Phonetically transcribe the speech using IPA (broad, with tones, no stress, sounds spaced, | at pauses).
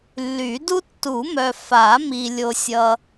lː y˨˩˦ d u˥ tː u˨˩˦ m œ˨ f a˨˩˦ m i˨ lʲ o˨ sʲ ʌ˨